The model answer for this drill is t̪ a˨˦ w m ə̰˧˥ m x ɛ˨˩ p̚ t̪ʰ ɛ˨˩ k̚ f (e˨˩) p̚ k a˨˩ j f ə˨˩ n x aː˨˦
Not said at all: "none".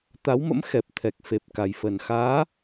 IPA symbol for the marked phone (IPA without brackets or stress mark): e˨˩